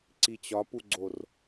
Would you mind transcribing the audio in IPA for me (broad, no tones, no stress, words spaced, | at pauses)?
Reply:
ǀit͡ɕɒpuɡ͡ǀor